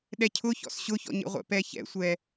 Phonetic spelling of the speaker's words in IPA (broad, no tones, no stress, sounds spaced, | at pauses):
ɗ ɛ cʰ ʊ ç ɔ̰ s ɕ ʊ ç ɔ̰ ɲ ḛ ʁʷ ɛ̰ p ɛ ç ɛ̰ sʷ ɛ